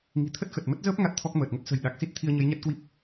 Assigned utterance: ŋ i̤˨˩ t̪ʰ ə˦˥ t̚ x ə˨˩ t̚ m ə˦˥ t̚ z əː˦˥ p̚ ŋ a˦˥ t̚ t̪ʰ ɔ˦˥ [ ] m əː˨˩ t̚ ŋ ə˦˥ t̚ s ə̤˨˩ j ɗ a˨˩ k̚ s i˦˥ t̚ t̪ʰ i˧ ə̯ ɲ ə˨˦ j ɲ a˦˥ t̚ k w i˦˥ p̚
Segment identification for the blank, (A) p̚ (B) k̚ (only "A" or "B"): B